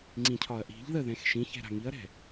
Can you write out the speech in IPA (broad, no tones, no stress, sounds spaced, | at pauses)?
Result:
ŋ͡ǀ ĩ cʰ ɒ ɐ̯ ʔ i̤ ʎ ð ə ð ɛ̃ x ʃ ĩ ç ɛ̤ ɾ a̤ ŋ i ɐ̯ ɾ ɛ̤